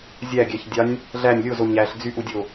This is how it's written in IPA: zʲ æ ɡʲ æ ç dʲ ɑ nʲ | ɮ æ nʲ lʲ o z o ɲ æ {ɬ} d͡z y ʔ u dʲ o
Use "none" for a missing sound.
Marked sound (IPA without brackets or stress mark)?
ɬ